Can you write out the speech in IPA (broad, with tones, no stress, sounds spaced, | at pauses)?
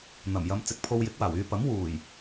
n̪ ɐ˨˩ m j ɐ˨˧ m t͡s ɪ˨ k̚ pʰ o˧ w j ɪ˨˥ k̚ w aː˨˩ w yː˧ p ɐ˨˥ m w uː˨˩ j